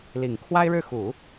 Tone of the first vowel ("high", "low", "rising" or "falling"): low